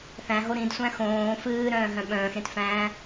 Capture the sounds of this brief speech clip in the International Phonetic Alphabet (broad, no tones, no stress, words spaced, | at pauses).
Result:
θæ̃ɦo ɾĩdsʷæ̃ xõː fɨːɾœ̃ːɦœ̃ ɓœ̃ːxɾẽtfæ̃ː